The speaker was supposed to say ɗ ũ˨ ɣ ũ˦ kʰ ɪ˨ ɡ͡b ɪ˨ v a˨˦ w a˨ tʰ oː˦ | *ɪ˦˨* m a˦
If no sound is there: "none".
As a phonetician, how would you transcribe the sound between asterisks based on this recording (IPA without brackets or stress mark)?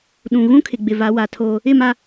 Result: ɪ˦˨